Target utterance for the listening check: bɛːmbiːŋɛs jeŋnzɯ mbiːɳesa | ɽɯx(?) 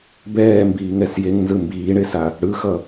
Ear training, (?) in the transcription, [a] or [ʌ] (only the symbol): ʌ